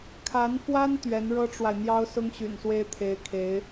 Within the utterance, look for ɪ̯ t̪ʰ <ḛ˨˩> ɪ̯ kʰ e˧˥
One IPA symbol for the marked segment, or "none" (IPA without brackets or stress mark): e˧˥